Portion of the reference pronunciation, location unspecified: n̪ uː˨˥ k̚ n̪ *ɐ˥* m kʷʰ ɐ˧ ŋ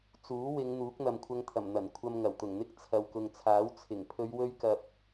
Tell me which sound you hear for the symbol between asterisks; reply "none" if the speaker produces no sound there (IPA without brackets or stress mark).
ɐ˨